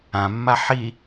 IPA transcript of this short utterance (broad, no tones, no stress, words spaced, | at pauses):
ãmːa ħi